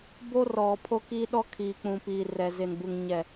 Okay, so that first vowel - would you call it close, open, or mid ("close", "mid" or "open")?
mid